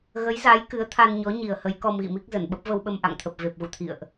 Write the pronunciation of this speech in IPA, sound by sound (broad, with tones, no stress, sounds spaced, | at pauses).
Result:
ɣ ə˨˦ j z a˨˦ j k ɨ˨˦ ə̯ t̪ʰ a˧ n ɲ ɔ˨˦ ɲ i˨˩ ə̯ h ə˨˦ j k ɔ˧ m ɣ ḭ˧˨ m i˦˥ k̚ z ə˧˩ n ɓ ə˦˥ p̚ v ə˧ w ɓ ə˧ m ʔ a̰˧˨ ŋ t̪ʰ ə˨˩ p̚ v e˨˩ p̚ ɣ ṵ˧˨ t̪ʰ ḭ˧˨ ə̯ ʔ